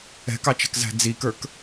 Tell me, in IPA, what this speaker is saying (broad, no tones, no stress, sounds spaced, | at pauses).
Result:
ɛ̤ k ɑ t͡ʃ ɛ̤ k z æ̤ d͡z i k ə˞ k